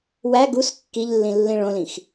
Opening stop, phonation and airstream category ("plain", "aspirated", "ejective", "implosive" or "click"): plain